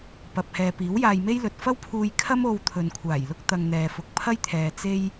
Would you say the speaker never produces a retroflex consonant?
yes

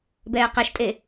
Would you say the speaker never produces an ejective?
no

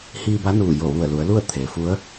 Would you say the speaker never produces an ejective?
yes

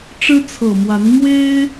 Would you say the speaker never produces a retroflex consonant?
no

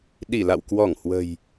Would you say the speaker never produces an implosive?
no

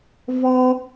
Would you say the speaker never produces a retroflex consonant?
yes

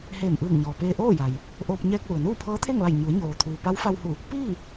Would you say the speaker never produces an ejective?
yes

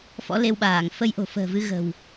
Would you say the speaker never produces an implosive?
no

